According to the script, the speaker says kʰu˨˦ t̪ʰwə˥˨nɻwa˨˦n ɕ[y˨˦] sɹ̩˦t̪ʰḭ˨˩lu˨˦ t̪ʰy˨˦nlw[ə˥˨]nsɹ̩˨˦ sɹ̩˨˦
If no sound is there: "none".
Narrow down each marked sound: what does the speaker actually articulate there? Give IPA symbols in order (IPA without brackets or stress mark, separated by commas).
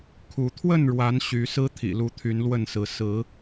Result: y˨˦, ə˥˨